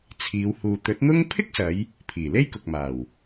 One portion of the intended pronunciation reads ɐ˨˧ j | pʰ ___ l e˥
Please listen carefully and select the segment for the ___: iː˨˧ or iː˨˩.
iː˨˩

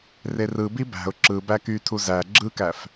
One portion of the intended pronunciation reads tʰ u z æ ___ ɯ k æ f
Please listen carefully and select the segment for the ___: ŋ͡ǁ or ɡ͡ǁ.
ɡ͡ǁ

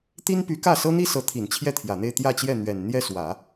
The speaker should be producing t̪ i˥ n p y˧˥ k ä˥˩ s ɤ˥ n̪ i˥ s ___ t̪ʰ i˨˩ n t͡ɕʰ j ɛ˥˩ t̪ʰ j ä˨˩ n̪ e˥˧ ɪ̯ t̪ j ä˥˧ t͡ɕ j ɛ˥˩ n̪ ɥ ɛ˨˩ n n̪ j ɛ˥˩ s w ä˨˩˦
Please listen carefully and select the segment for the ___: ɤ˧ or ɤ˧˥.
ɤ˧˥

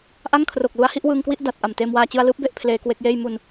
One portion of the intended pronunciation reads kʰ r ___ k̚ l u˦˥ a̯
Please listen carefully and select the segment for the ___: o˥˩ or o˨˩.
o˨˩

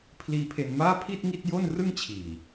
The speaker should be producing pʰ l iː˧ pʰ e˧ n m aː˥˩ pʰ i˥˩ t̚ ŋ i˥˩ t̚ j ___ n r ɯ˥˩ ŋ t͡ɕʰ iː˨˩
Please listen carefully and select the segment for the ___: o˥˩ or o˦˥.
o˥˩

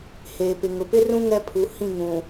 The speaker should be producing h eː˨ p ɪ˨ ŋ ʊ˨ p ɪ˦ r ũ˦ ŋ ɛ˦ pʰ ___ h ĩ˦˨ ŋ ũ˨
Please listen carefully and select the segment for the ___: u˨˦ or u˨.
u˨˦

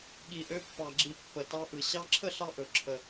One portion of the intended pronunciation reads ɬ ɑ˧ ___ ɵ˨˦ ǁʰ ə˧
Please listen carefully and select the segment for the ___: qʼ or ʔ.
ʔ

